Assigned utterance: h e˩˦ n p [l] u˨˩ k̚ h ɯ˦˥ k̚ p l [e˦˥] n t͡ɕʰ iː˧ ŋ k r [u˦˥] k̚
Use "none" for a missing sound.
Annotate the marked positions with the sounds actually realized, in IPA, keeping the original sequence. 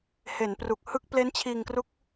r, e˦˥, u˦˥

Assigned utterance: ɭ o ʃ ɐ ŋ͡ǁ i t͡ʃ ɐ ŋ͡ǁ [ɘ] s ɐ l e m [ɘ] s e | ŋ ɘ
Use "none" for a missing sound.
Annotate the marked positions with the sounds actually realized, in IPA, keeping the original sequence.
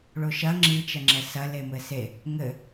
ɛ, ɘ

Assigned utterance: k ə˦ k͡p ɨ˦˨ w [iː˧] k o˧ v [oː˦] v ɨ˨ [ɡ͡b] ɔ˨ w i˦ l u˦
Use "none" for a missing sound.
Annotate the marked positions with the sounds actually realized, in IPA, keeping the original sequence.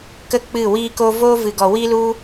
iː˧, oː˦, ɡ

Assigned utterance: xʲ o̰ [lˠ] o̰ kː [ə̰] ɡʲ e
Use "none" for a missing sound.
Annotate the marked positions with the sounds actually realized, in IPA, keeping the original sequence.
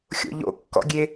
ʎ, ɔ̰

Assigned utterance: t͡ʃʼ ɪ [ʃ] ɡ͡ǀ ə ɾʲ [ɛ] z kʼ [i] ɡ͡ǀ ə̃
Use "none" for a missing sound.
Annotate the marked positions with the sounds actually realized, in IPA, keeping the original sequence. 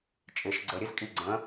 ʃ, ɘ, i

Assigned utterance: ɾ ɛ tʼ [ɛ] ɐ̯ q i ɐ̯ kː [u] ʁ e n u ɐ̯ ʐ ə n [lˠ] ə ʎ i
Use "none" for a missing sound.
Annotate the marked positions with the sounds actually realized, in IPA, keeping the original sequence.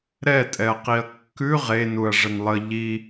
ɛ, ʉ, lˠ

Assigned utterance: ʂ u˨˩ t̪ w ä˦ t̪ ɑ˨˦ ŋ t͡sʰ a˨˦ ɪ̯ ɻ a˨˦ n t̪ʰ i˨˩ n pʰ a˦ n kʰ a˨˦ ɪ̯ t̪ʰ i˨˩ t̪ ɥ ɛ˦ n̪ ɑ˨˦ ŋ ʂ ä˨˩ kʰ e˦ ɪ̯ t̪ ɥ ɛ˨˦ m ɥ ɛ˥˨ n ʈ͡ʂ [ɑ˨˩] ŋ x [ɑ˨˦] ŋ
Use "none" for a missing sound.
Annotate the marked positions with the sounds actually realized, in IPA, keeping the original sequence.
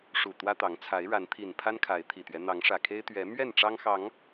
ɑ˦, ɑ˨˦

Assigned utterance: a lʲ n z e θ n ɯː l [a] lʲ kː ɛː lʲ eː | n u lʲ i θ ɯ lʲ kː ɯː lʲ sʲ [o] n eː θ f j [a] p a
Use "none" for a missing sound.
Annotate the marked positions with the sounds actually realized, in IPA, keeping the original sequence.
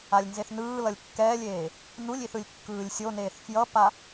ʌ, o, ʌ

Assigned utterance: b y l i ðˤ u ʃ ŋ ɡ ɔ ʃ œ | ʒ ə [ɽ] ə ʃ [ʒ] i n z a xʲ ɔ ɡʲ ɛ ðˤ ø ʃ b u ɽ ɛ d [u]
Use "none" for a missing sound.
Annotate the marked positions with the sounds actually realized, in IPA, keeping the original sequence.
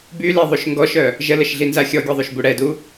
l, ɮ, u

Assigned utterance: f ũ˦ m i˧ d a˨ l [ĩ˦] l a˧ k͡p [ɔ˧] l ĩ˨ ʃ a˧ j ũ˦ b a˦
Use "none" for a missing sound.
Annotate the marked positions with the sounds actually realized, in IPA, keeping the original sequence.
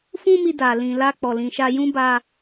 ĩ˨, ɔ˨

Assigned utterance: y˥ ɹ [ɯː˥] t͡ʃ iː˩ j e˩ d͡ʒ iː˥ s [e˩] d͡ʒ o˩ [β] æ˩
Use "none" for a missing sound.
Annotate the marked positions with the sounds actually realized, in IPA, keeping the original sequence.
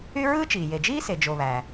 ɯː˥, e˩, β

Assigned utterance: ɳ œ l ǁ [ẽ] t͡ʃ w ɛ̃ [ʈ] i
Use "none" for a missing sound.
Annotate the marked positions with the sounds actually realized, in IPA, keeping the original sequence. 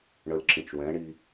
ĩ, ɳ

